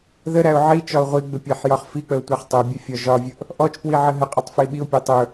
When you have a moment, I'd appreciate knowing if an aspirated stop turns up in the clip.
no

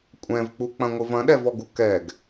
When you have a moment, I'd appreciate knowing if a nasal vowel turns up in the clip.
yes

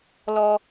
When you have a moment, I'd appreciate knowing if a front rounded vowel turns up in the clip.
no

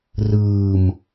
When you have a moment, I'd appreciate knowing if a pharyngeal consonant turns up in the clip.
no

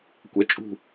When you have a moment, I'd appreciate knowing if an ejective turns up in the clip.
yes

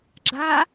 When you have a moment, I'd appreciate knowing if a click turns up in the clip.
yes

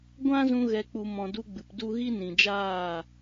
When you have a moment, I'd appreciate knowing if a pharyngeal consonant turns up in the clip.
no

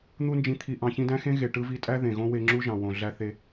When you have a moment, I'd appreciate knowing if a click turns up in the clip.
yes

